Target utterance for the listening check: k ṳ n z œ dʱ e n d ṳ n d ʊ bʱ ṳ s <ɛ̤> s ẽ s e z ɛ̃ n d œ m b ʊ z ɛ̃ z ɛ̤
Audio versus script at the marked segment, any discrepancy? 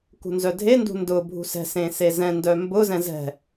no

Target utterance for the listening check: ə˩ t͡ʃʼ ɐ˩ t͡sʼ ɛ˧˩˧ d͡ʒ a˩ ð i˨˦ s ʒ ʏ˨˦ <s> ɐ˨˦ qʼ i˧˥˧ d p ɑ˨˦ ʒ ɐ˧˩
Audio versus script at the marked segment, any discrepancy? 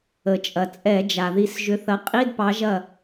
yes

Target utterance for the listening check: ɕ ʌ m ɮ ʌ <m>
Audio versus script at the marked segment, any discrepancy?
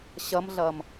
no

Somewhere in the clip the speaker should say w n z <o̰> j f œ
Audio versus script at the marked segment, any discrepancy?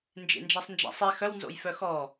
no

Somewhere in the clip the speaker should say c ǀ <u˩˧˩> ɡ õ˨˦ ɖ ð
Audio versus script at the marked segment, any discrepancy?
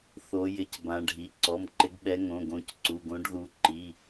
no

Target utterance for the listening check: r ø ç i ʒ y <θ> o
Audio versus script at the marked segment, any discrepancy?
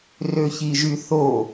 no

